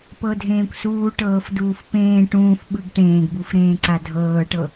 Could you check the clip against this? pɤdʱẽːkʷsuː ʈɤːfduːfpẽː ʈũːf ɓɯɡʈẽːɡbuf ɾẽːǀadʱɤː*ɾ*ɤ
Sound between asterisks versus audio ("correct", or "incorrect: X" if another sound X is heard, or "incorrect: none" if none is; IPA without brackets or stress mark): incorrect: ʈ